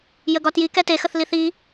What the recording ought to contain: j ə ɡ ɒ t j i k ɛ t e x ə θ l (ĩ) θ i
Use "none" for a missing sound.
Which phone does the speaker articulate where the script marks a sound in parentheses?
i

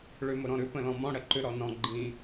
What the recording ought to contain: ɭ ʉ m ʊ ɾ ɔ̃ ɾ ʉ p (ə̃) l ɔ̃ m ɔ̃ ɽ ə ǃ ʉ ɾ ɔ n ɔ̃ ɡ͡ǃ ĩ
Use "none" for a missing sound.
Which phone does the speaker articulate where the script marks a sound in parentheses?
ə̃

